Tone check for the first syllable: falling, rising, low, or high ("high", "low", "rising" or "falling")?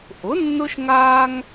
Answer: rising